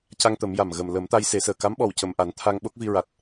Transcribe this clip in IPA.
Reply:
c a˧ ŋ t̪ ə˨˩˦ m j a˨˩ m ɣ ə˨˩ m l ə˨˩˦ m t̪ a˧ j s e˨˩˦ s əː˨˩ k a˧˥ m ɓ ɔ˨˩ w c ə˨˩ m ʔ a˨˩˦ n t̪ʰ a˧ ŋ ɓ o˦˥ k̚ v i˧ ɹ a˨˩ t̚

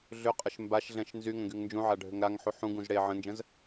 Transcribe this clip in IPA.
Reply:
ɮ ʏ qʼ ə ʃ m b a ʃ ɮ ɛ̃ ʃ n z y ŋ ə̃ ɡ y ŋ n d͡ʒ ũ ʕ a ɖʱ ʏ ŋ ɾ a ŋ ħ u ħ ũ ɡ ũ z ɽ e ʕ ə̃ n d͡ʒ ə̃ z

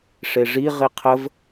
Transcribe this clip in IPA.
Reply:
ʂ e ʐ i ʁ i qʰ ə v

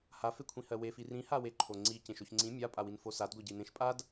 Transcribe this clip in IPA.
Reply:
h a f e kʷʰ ĩ h ɜ w e f i r ĩ h a w e ǃʰ o ŋ͡ǀ i c ẽ ʃ o ç ŋ͡ǀ ĩ mʲ a pʼ a w i n f o s a d ɡʷ ɜ ɟ i n ẽ ʃ pʼ a d

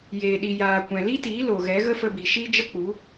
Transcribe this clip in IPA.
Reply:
j eː˨ ɗ i˨ j aː˨ kʷ ɛ̃˨ l i˦ t iː˨˦ l o˨ ɣ ɛ˨˦ ɣ ə˦ f ə˧ b i˨ ʃ iː˦ d͡ʒ ə˦ k͡p u˨˦

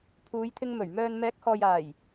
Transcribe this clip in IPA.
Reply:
pʰ uː˨˧ j t̪ʰ ɪ˧ ŋ m ɵ˨˩ ɥ m œː˧ n m ɛː˨˥ k̚ h ɔː˨ j aː˨˩ j

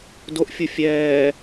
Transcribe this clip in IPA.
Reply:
d o ʔ fʲ u fʲ ɛː

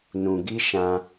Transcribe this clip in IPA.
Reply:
n ũ˨ ɡ i˦ ʃ ã˧

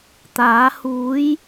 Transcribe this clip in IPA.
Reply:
t̪ aː˨˥ h uː˨˥ j

